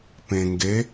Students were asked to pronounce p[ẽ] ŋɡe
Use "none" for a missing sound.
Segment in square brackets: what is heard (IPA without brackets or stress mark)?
ẽ